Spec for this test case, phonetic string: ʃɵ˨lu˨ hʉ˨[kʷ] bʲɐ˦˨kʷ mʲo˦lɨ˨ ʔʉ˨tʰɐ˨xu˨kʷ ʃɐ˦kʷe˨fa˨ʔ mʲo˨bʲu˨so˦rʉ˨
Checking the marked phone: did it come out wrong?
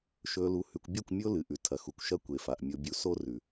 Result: no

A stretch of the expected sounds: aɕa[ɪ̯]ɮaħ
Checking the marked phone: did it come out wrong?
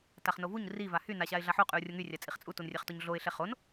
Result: no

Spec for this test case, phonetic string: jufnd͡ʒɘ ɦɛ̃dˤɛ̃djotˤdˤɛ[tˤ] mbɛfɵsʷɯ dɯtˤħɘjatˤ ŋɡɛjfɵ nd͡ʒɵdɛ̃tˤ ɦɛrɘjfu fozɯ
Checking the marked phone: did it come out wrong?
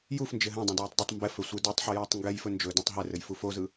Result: no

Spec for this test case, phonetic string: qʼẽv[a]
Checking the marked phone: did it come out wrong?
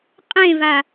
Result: no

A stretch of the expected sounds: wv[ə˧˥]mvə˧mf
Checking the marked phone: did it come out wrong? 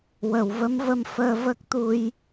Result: no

